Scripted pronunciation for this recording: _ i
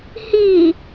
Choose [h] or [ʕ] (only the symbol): h